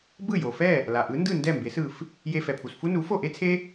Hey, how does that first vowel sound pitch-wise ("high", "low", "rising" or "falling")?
falling